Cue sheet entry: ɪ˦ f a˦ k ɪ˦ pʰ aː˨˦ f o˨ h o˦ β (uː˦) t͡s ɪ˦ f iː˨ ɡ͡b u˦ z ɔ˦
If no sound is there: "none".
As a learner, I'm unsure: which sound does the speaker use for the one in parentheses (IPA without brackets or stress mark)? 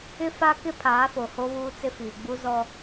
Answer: uː˦